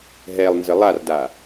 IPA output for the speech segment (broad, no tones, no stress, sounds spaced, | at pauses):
ɦ ɛ lˠ n z ə lˠ a r d a